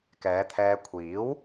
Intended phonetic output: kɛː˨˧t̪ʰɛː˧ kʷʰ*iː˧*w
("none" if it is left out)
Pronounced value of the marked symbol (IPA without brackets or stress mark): iː˨˥